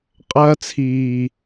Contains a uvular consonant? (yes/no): yes